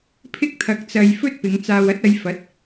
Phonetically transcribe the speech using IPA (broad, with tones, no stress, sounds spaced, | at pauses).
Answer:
pʰ ɪ˧ k̚ t̪ʰ ɐ˨ k̚ t͡s ɐ˨ j f ɵ˥ t̚ p ɪ˨˧ ŋ t͡s aː˨ w ɐ˨˥ t̚ ɐ˨˧ j f ɐ˨˥ t̚